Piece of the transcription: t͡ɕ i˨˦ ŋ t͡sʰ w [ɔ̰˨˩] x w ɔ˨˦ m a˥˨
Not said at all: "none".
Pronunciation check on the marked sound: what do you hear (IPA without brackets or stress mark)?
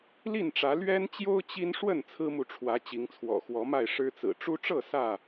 ɔ̰˨˩